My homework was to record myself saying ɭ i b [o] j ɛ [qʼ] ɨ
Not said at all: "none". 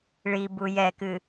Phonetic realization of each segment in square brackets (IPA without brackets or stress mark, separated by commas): u, k